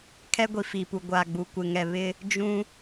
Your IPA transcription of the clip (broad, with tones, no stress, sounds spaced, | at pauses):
kʰ ɛ˦ ɡʷ i˨ f i˨ p u˨ ɡʷ a˨ ɡ͡b u˨ kʷ ɪ˨ ŋ ɛ˨ β ɪ˦ | d͡ʒ ũ˦